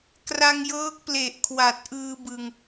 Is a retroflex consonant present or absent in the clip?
absent